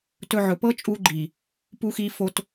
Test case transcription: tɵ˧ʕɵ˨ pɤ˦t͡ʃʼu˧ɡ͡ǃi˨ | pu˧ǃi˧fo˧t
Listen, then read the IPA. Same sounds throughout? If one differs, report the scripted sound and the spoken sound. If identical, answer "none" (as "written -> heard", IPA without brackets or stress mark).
ǃ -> x